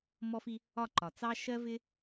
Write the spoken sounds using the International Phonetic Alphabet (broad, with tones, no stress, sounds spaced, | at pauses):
m ɔ˦ f i˦ | ɒ˦˨ ǃ ɒ˨ t͡s ɑ˦ ʃ ɜ˦ v ɪ˦